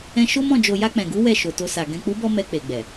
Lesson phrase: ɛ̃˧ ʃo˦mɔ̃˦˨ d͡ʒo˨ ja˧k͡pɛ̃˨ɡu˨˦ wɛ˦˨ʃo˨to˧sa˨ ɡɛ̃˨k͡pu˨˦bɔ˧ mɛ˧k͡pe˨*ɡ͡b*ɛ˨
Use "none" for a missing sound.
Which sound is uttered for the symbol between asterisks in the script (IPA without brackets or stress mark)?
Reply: ɡ͡b